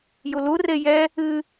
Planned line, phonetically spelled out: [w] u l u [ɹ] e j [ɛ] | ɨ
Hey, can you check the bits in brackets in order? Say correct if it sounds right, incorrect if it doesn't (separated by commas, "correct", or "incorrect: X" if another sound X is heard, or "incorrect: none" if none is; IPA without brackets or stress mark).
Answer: incorrect: j, incorrect: r, correct